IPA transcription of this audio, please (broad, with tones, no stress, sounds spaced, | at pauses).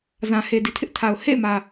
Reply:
z ã˨ h e˨ d i˨ tʰ ɪ˦ ʔ tʰ a˨ ʊ̯ h ḛ˦˨ ɪ̯ m ä˨